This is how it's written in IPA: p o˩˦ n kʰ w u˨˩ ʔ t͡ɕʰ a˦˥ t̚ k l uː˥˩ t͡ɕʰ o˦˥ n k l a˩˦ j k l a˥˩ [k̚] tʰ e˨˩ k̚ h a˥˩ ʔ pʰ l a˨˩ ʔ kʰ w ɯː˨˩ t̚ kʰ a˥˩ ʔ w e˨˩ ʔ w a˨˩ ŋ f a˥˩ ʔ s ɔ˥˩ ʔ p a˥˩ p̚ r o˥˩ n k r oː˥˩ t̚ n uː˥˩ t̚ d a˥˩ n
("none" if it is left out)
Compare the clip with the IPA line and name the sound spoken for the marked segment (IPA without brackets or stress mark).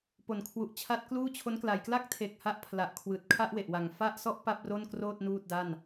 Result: k̚